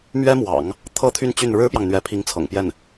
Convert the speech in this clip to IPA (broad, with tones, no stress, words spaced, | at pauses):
mɥɛ˥mwɑ̰˨˩˦ŋ | t̪ʰɤ˥t̪ʰy˥˧n t͡ɕy˥˩n ɻɻ̩˥pjɑ˨ŋn̪ɥɛ˧˥ pʰi˧˥ŋt͡sʰɤ̰˨˩ŋpjɛ˥˩n